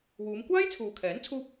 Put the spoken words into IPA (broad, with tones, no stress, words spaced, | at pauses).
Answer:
wuː˨˧mkʷaː˥jt͡sʰuː˨kʰɛː˨˥n t͡sʰuː˥p̚